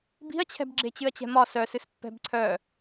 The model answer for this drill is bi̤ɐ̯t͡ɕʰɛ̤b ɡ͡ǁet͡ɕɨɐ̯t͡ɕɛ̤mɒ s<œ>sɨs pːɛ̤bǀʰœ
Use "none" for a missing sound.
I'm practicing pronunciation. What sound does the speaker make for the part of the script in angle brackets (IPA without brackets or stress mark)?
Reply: œ